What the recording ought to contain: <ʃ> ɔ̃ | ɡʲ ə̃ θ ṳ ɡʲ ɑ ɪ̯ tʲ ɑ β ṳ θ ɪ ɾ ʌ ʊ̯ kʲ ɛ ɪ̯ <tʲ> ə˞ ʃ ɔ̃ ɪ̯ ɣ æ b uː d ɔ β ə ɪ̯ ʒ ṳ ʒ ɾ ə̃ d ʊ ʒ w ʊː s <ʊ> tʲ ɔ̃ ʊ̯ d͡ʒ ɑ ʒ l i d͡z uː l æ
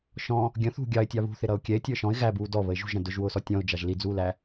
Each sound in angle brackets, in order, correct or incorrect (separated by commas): correct, correct, incorrect